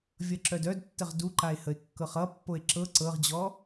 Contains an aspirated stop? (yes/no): no